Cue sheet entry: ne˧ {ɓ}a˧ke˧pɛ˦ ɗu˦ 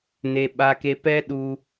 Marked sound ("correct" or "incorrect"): correct